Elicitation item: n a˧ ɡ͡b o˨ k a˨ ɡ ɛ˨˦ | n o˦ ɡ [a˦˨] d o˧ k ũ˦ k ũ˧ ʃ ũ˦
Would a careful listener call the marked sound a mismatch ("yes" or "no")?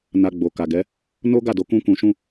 no